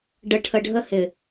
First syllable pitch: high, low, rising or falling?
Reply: low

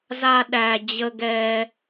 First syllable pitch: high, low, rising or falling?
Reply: high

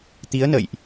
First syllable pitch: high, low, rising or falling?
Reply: rising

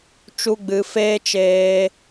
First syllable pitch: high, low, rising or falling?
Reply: high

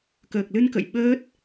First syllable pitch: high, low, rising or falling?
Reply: low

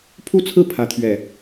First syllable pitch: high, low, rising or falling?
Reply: falling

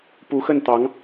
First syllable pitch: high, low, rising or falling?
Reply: rising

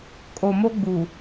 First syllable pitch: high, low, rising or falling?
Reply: low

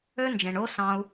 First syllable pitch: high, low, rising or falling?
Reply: high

